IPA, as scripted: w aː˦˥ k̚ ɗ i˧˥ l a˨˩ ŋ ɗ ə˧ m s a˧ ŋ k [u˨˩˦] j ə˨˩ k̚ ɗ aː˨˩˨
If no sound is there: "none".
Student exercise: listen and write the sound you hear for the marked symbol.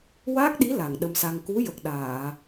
u˧˥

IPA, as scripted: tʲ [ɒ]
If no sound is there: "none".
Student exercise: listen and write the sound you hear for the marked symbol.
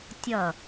ʌ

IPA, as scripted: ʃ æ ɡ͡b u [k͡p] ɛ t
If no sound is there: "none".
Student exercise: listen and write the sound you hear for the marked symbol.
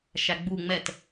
ŋ͡m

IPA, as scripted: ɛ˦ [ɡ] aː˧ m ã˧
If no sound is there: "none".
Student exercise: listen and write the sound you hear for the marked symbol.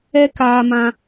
k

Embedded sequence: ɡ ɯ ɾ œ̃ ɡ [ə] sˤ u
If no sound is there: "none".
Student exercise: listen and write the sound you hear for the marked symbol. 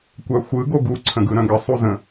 ə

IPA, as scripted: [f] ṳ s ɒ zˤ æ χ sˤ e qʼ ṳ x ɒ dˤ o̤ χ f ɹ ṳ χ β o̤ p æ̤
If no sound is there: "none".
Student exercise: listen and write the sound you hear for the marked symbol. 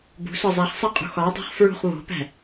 b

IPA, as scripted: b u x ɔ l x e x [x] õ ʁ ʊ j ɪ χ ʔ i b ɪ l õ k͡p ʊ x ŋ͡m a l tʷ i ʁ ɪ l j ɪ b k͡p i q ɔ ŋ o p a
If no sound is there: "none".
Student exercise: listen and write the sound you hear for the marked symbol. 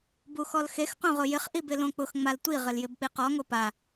q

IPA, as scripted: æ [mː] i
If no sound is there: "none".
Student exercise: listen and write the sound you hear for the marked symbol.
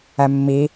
mː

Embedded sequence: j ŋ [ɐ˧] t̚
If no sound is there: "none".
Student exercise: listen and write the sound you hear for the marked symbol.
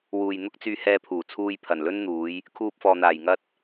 ɐ˥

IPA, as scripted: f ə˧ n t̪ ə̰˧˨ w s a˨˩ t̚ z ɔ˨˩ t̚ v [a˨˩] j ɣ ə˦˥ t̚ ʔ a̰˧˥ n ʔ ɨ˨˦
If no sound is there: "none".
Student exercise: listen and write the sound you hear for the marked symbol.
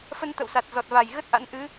a˨˩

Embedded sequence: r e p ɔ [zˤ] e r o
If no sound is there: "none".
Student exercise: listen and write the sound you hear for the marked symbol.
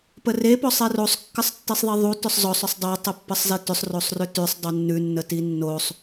sˤ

